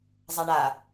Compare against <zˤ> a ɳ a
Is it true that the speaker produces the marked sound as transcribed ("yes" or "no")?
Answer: yes